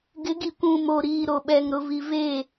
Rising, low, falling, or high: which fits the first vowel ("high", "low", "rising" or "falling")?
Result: rising